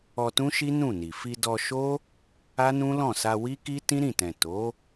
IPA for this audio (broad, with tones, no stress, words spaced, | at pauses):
ɔ˧tũ˦ʃi˦ nũ˦˨ni˨ fi˧dɔ˧ʃo˦ | a˦nũ˦lɔ̃˦˨ sa˧ wi˦ki˦ tĩ˦ɾĩ˦˨tɛ̃˨ to˨˦